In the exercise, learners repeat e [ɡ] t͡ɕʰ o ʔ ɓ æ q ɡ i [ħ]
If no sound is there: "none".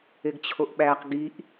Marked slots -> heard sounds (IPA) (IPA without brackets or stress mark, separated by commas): ɡ, ʔ